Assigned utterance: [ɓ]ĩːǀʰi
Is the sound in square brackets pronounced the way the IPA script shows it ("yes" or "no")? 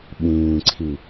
yes